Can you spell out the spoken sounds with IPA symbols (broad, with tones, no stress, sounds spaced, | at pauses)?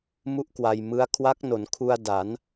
m u˥˩ ʔ k w a˧ j m ɯ˦˥ a̯ kʰ w a˦˥ k̚ n o˩˦ n kʰ u˧ a̯ d a˩˦ n